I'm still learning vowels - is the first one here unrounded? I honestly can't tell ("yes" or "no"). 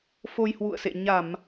no